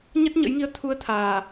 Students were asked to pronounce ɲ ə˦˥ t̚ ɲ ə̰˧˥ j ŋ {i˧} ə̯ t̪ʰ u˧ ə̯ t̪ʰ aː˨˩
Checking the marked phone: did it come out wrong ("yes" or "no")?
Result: no